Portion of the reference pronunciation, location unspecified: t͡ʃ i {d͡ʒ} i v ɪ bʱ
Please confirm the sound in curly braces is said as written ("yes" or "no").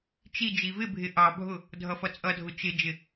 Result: yes